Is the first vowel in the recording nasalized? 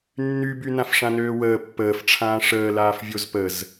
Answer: no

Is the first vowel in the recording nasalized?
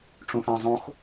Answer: yes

